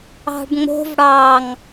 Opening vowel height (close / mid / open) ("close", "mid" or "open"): open